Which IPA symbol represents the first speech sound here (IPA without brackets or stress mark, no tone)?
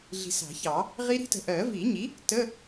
ɮ